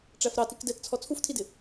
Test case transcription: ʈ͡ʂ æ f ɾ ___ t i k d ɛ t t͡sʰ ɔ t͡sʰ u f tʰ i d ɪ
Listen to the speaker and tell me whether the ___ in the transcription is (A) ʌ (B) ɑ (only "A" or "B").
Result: B